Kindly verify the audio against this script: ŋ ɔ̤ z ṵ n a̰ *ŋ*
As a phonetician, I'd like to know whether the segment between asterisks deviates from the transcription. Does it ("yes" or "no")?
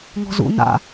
yes